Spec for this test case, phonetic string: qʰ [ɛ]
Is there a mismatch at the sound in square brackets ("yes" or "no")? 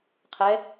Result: no